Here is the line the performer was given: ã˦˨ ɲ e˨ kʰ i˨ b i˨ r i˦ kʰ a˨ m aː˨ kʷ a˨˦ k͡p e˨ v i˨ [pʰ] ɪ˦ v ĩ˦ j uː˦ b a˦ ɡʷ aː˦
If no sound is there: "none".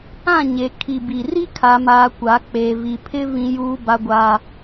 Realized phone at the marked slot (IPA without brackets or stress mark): pʰ